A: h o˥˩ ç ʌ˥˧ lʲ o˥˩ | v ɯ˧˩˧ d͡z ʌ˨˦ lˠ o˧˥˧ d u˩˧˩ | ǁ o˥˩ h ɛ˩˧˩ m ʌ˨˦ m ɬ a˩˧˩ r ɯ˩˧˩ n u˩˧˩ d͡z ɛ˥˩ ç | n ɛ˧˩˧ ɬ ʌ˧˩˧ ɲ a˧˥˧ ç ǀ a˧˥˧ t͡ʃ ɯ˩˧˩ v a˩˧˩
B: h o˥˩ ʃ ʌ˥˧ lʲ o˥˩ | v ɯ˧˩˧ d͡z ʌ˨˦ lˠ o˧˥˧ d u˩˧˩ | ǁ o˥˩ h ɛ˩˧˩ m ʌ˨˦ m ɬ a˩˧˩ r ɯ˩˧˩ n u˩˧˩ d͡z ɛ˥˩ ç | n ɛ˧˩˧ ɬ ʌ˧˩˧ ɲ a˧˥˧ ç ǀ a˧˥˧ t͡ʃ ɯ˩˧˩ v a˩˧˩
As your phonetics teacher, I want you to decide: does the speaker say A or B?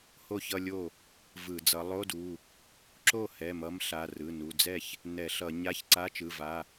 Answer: A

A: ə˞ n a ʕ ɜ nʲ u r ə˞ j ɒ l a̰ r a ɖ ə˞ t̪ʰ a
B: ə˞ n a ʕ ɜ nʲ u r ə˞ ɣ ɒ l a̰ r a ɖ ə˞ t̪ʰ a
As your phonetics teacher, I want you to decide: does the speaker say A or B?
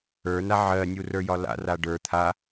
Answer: A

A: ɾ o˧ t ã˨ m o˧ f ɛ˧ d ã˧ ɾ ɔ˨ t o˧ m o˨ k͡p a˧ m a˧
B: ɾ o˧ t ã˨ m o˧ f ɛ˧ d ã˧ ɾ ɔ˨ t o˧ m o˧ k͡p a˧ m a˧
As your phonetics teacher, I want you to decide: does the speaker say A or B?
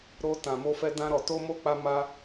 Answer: B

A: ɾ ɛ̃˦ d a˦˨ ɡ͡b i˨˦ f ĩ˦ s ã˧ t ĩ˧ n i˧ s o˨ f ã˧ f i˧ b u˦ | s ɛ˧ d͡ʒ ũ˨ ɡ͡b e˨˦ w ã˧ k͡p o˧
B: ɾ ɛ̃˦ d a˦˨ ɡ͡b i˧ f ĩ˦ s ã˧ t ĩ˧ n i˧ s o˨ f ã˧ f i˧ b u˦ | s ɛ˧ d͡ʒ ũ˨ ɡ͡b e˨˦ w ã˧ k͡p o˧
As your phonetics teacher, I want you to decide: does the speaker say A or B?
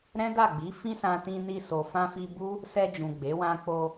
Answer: A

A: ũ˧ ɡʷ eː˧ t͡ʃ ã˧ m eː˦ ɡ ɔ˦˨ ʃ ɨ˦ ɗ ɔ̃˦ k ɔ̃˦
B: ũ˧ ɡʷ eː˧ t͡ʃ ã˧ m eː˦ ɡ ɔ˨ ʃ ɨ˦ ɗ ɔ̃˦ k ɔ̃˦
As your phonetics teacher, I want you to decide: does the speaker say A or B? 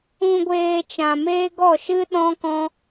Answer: A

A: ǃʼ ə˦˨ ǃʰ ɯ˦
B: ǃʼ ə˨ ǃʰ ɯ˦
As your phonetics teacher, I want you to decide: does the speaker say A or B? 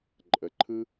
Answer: B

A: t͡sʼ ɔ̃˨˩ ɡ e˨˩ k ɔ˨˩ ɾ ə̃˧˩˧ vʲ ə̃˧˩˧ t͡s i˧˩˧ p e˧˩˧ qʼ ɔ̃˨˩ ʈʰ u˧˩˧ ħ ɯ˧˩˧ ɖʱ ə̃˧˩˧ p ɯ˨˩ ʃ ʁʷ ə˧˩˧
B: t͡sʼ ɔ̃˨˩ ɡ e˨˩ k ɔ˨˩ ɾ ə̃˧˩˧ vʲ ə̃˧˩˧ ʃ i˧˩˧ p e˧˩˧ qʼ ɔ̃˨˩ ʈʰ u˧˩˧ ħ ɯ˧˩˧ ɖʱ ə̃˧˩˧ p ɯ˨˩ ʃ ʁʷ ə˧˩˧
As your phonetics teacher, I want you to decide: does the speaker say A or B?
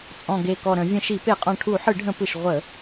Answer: B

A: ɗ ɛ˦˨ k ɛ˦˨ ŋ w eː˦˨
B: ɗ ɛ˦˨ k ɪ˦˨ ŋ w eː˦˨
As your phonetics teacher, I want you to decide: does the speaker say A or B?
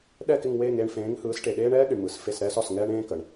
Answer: B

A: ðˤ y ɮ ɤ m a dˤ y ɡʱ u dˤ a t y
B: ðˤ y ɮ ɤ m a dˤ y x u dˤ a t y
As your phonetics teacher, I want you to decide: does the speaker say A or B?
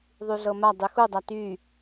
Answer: B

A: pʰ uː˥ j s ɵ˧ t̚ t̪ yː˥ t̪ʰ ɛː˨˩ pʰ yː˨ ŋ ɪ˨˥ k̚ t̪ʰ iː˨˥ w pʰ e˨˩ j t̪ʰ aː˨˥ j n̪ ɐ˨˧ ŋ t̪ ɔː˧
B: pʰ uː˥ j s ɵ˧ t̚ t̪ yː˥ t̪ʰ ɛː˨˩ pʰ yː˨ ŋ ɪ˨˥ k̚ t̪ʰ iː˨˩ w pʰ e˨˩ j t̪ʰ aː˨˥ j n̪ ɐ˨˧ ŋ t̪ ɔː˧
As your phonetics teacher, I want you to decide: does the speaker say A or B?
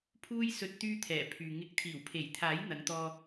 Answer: B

